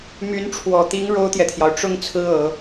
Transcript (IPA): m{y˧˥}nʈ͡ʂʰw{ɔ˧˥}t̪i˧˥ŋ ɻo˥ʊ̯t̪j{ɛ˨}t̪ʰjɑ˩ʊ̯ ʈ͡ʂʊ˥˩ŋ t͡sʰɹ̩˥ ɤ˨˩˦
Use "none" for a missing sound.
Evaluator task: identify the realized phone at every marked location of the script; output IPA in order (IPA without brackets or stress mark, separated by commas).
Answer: y˧˥, ɔ˨˩, ɛ˨